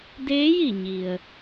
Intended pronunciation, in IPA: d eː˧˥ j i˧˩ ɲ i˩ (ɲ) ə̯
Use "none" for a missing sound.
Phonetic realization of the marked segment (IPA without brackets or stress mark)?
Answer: none